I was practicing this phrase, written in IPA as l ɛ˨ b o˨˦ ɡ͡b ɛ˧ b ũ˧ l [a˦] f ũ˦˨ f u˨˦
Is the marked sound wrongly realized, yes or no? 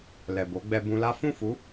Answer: no